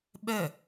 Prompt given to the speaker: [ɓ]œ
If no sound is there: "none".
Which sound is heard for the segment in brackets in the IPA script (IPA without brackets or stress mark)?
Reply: ɓ